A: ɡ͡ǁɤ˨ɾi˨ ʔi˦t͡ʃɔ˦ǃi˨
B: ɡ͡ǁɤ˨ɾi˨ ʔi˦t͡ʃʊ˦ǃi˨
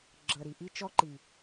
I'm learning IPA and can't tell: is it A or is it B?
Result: A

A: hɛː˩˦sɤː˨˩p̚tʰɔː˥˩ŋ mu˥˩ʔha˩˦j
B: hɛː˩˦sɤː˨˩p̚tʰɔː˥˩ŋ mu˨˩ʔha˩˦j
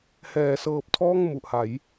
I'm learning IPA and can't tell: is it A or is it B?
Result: B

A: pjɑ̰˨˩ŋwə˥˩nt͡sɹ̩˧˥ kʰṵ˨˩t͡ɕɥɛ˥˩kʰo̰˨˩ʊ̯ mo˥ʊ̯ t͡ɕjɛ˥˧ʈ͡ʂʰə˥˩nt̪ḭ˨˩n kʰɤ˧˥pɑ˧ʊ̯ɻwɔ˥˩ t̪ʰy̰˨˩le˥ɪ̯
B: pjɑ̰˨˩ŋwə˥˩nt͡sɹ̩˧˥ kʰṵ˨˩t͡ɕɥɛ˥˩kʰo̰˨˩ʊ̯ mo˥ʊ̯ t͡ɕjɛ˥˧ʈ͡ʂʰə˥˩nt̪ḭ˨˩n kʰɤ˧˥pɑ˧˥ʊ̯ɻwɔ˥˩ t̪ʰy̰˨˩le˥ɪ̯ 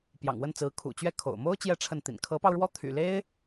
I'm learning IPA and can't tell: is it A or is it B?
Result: A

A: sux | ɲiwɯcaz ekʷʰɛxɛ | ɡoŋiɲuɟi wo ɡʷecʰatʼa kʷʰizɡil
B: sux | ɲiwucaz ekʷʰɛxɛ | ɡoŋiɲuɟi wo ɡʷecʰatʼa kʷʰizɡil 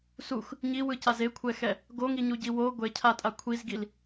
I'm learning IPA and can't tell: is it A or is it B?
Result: A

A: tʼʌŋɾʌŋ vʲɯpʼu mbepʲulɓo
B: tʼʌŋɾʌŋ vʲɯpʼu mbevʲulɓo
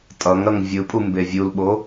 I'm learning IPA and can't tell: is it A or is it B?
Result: B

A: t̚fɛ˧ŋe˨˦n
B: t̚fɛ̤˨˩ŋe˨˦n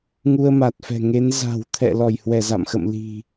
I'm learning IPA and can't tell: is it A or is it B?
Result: B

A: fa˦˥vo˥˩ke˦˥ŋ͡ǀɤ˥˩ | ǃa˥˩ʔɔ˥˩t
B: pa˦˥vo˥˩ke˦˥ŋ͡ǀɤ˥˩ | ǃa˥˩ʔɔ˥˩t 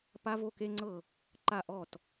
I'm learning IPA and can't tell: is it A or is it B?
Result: B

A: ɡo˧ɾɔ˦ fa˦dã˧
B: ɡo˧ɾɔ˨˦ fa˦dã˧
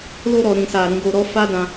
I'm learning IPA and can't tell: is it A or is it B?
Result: A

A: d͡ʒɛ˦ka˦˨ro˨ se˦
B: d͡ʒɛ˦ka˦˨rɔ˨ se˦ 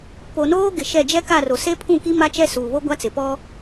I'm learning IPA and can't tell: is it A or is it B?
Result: A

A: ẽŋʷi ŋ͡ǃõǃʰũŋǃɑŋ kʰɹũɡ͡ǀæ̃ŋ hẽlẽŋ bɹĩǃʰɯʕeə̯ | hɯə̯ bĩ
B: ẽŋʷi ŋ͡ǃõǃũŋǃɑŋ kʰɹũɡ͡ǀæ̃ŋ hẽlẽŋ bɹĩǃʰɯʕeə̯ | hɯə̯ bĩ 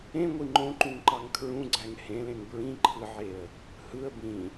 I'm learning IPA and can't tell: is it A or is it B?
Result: B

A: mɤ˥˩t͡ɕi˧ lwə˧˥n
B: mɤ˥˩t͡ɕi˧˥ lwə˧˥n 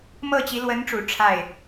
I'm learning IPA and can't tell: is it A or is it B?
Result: B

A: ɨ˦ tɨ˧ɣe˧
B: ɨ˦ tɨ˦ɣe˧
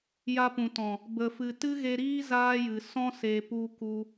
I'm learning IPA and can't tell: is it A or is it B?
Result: B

